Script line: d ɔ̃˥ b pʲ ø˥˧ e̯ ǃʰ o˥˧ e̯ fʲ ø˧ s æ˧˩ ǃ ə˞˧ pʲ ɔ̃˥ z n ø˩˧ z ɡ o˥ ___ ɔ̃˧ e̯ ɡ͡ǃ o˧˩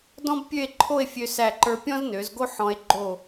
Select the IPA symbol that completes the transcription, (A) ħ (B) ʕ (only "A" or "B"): A